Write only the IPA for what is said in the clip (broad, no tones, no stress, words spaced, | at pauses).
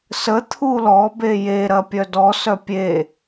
sə t̪ʰulɔ beje ɾɐpʲœdɔ sœpʲe